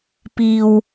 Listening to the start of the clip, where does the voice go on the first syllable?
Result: low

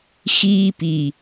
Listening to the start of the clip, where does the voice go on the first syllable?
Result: high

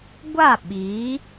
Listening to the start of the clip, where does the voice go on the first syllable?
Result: falling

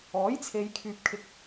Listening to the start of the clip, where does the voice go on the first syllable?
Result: rising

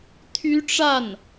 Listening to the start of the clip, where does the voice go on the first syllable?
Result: high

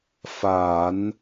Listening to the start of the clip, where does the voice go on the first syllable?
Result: low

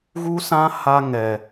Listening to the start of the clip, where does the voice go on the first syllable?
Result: high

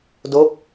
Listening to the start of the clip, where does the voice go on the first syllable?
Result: falling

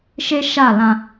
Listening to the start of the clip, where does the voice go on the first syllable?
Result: high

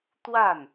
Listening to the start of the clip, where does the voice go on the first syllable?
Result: falling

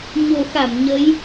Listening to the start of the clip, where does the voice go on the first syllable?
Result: low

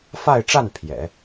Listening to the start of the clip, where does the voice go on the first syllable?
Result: falling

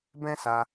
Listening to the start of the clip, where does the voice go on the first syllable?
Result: high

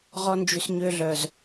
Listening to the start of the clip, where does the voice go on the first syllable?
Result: high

